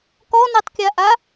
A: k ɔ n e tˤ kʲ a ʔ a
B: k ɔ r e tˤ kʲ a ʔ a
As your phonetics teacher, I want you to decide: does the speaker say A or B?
A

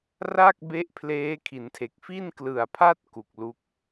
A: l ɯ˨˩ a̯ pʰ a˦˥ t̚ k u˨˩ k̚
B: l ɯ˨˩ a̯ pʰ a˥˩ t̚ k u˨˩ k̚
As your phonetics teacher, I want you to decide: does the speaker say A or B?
B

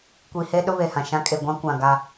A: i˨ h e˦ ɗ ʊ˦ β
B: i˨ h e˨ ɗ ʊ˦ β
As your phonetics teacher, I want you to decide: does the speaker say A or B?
A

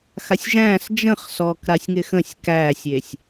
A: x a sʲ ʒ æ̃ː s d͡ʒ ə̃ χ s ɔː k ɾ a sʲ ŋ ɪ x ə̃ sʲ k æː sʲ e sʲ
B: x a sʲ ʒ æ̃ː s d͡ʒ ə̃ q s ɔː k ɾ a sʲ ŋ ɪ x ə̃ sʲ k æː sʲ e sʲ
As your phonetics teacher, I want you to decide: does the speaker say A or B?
A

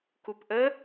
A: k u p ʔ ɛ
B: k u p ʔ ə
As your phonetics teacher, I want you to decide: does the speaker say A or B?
B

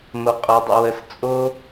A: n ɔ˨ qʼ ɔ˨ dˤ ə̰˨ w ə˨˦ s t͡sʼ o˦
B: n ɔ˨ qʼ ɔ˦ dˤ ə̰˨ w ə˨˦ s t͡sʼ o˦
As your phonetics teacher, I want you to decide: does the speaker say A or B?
A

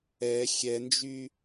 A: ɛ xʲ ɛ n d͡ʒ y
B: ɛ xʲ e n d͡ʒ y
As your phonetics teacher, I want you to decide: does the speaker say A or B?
A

